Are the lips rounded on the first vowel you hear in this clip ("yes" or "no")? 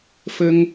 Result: no